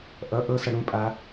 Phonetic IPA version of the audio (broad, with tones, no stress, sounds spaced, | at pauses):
ʔ ʌ˩˧ ʔ ɤ˧ s ʌ˩ ɽ ũ˧ pʼ a˩˧